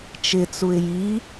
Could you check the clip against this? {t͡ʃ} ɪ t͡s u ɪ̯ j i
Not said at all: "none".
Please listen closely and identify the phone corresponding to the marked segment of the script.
t͡ʃ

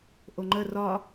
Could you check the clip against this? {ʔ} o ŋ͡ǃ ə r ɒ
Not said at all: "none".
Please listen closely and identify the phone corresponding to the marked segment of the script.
ʔ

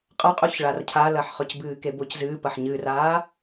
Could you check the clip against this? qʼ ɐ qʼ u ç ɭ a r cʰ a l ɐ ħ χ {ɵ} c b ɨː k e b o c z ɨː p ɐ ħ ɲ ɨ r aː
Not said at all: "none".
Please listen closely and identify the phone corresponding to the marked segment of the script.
ɵ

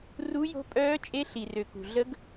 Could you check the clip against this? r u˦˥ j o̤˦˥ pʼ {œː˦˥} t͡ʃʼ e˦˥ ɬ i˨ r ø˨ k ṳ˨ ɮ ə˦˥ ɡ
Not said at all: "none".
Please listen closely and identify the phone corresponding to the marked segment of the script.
œː˦˥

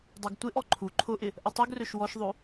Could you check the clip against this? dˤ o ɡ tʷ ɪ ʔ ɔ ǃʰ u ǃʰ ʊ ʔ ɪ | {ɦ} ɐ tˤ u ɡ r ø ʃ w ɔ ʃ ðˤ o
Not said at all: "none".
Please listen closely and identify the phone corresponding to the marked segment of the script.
ʔ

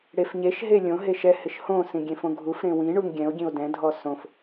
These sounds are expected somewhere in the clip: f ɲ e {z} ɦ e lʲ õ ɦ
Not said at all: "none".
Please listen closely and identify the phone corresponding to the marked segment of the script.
ʃ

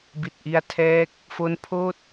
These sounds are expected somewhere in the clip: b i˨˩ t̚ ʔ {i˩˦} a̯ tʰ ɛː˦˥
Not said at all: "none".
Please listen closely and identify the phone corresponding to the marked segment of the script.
i˧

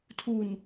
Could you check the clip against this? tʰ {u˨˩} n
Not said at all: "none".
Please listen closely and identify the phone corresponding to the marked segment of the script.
u˨˩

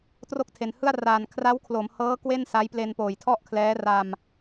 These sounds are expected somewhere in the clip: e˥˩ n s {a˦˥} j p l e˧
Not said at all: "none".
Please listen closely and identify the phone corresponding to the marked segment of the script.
a˦˥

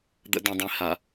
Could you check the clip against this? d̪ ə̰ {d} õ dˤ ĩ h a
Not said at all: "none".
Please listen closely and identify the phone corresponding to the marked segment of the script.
d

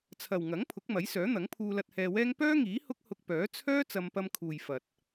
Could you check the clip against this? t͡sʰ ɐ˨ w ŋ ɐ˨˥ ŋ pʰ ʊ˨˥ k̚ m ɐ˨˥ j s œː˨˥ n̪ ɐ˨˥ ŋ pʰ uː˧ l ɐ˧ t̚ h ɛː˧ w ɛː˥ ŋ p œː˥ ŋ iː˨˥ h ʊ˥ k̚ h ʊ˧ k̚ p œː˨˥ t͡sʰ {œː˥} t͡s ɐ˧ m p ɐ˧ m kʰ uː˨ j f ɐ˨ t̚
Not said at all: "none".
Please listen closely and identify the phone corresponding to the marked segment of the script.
œː˥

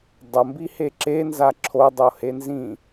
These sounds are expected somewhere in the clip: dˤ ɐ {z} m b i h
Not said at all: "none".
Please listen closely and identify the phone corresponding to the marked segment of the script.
none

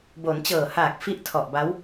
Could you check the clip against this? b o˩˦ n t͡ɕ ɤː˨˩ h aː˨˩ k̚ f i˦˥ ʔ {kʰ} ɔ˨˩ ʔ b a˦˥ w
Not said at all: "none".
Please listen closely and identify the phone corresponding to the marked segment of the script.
tʰ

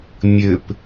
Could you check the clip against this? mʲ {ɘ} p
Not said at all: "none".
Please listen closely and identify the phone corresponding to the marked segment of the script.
ɘ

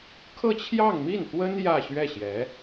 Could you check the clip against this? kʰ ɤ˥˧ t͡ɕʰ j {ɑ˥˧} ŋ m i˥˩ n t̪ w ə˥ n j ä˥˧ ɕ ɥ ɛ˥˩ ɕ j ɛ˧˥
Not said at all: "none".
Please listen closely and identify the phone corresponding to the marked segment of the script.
ɑ˥˧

